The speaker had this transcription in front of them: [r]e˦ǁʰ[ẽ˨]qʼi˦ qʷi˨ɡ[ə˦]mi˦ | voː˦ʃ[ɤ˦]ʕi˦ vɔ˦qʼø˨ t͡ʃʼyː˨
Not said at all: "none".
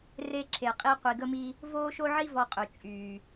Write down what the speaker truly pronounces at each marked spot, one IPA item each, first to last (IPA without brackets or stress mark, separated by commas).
r, e˨, ə˦, o˦